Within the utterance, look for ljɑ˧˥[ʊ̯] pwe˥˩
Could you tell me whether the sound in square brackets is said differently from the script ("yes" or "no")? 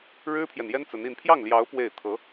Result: no